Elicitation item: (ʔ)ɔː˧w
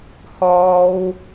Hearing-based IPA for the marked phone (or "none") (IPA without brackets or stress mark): h